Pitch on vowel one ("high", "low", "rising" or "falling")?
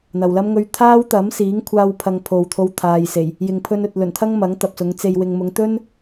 low